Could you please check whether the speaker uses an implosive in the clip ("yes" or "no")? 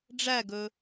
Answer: no